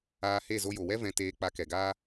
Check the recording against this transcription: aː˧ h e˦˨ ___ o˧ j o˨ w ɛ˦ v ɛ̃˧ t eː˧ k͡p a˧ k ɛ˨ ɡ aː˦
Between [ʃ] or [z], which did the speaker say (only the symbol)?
z